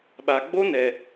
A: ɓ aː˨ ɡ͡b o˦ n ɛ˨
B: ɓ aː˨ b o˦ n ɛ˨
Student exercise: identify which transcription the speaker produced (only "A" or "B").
A